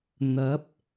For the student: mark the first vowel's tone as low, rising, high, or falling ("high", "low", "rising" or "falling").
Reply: rising